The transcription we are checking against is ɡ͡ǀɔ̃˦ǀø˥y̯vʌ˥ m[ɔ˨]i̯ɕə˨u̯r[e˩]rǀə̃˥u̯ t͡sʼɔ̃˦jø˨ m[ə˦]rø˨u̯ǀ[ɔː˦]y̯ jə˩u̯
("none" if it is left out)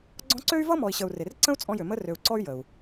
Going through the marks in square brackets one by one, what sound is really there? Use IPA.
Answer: ɔ˨, e˩, ə˦, ɔ˦

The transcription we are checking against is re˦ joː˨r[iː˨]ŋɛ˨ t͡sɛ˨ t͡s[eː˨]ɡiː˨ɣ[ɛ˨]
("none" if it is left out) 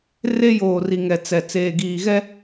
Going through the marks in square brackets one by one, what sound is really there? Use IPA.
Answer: i˨, eː˨, ɛ˦

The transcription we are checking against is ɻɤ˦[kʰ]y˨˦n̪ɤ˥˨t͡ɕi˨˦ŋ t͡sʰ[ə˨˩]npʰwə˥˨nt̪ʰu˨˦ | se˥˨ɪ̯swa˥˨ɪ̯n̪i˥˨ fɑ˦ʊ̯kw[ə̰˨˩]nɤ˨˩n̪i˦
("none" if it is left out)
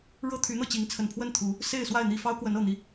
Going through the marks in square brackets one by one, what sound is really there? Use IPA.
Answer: t̪ʰ, ə˨˩, ə˨˦

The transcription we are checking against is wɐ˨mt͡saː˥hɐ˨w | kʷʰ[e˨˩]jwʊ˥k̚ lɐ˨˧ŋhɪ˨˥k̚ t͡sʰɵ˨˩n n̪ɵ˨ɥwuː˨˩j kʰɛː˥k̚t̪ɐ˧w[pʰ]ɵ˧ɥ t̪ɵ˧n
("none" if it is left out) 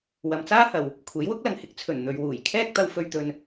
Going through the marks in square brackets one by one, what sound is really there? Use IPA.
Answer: e˨˥, f

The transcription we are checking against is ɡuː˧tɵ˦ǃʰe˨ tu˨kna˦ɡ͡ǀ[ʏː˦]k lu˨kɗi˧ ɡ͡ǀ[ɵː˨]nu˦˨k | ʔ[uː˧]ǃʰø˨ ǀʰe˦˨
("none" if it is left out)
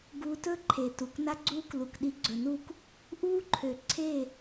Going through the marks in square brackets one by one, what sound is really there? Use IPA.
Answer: uː˦, ɵ˨, uː˦

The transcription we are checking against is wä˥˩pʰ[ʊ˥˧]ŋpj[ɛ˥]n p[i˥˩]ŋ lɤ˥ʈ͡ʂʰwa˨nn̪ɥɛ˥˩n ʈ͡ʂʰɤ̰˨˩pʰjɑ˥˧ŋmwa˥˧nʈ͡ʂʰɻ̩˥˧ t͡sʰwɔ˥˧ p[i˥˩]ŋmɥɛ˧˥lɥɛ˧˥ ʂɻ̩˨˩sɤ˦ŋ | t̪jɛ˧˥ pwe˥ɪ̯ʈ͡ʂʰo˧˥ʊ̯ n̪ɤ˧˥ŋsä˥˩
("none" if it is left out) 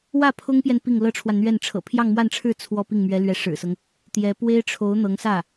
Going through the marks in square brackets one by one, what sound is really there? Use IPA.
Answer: ʊ˥, ɛ˨, i˥˩, i˥˩

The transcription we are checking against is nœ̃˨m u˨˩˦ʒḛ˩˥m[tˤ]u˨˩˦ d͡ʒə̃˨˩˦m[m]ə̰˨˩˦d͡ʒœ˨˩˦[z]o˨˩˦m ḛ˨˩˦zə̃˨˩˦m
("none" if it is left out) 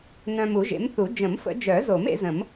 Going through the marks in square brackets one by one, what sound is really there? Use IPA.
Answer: θ, f, z

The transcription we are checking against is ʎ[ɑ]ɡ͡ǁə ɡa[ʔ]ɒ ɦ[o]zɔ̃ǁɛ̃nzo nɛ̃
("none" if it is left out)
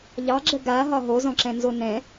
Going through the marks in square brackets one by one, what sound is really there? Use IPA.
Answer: ɑ, ɦ, o

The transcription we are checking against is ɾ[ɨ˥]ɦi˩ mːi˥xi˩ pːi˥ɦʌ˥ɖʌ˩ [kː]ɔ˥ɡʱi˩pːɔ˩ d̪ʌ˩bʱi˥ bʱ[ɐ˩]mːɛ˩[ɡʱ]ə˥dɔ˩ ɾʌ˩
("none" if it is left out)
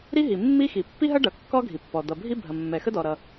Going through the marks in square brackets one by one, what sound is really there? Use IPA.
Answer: i˥, kː, ɐ˩, x

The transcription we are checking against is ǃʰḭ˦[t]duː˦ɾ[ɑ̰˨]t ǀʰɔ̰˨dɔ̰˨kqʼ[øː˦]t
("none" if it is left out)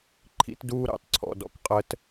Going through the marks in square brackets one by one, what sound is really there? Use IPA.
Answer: t, ɑ̰˨, əː˦

